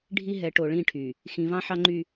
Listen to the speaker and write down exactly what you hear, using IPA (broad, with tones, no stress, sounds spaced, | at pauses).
ɖʱ i˦ ɦ ɛ˨˦ ʈ o˨ ɭ ĩ˦˨ ʈʰ y˨ | x ĩ˨ v ɑ̃˦ ħ ɑ˦ ŋ͡ǃ y˦